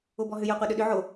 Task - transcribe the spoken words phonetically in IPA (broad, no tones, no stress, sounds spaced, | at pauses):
o b ɔ ɦ ʏ j ɔ qʷ ɛ ɗ ʏ ɗ ʏ ʕ o